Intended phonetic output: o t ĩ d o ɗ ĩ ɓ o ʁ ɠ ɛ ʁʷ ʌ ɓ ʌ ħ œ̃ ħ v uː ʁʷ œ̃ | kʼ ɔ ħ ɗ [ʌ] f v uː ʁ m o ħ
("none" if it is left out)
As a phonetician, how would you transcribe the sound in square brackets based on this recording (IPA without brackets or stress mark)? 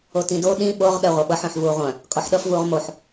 ʌ